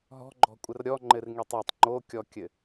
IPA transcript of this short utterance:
ɦɔ̤ɡ͡ǃɔ̤kʷʼɘr ɾʲɔŋ͡ǃɘrŋitˤ ɒtˤ ŋ͡ǃokʲɔkʲɘ

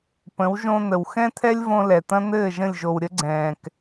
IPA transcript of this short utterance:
pə̃˨˦wʒõ˧n̪ə˨w xɛ̃˦t̪ʰɛ˦lʲ võ˧lɛ˨t̪ɐ̃˦ n̪ɘː˦˨ʒə̃˦˨lʲ ʒo˨w ɾʲə˦ɡ͡ǀɛ̃ː˨k

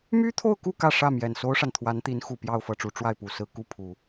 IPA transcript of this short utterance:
my˥t̪ʰo˥˧ʊ̯ku˥˧ kä˥˧ʂä˥˩ mjɛ˨˩nso˥ʊ̯ʂa˨nt̪ʰwa˧˥n t̪i˧˥nxu˨˩ pjɑ˥˧ʊ̯fɤ˥˩ʈ͡ʂu˧˥ ʈ͡ʂwa˥˩ɪ̯pu˨˩sɹ̩˥˧ ku˥˩pʰu˨˩˦

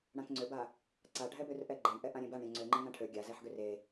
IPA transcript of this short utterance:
ɽãkŋ͡ǀøba | ǀaɖʱɛbør ʔɛɡ͡ǃeɳʔɛ ʔãɾʲẽbaɳɾʲã ŋ͡ǀøŋ͡ǃẽ ŋãʈʰø ɡʲazɛħɡør e

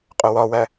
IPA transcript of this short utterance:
qʼʊwɒwæ

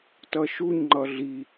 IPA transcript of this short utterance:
tʌʃuɲ ŋ͡ǃʌɮi

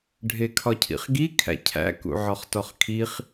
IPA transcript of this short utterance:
ɖʱekʰɒcʰḭχɡi kʰæ̰cʰæ̰ kṵʕɒχtɒχkʰiχ

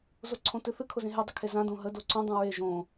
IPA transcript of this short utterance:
zoǀʰõtɨθɨ kʰʊzẽɦe dˤəkʰezã dõɦə doǀõ dˤũɹe ʒõ

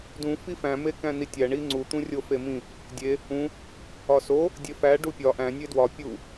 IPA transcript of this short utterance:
dũ fifæ̃ mekæ̃nitʲæ ɳiŋ͡ǀu t̪ũrʲofemĩ | dʲe | ũ | ɒso | dʲefæ ɖupʲɒ ʔæ̃ nʲedwɒ pʲu

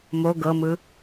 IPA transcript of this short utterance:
mo ɡɤmɯ

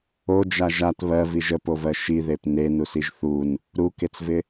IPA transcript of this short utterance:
od͡ʒa ʒat βɜviʒ əpovɜ ʃiðep nenusiʒ θun | ɾuket͡svɪ

